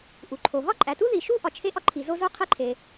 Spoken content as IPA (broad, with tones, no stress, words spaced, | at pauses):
ʔu˩ǃʰo˩ ɦɒ˥ǃʼæ˩tu˥ ði˩ʃu˥ ʔɒ˩t͡ʃʰe˥ʔɒ˥ ǃʰi˩zo˥zo˥ qʰe˥ǃʰe˩